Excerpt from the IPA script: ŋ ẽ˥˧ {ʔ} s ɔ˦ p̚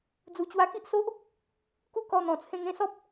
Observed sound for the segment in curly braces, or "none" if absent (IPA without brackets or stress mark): none